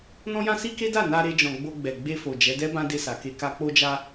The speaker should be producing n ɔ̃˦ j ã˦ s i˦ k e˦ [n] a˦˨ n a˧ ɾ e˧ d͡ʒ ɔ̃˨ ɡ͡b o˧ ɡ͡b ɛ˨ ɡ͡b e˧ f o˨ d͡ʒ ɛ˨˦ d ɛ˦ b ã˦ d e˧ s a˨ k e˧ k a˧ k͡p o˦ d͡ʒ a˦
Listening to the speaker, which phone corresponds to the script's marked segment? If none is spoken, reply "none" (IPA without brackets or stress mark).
d